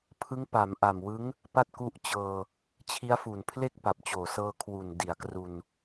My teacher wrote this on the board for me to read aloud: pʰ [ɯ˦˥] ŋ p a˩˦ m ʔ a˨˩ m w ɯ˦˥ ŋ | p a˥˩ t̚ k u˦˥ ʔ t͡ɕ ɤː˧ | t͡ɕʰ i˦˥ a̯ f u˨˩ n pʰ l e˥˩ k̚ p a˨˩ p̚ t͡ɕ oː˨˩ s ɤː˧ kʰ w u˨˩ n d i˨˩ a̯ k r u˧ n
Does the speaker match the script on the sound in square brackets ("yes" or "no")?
yes